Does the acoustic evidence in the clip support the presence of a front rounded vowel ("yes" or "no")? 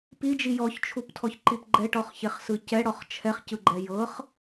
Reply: no